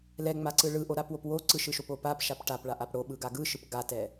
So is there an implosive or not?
yes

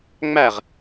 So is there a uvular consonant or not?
yes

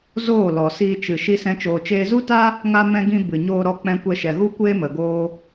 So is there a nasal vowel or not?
yes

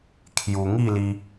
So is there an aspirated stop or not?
yes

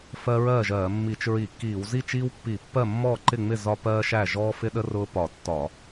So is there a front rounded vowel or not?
no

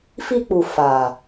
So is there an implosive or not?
no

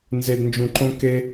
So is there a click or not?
yes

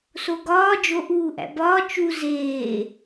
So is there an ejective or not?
no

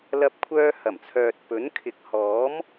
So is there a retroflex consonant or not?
no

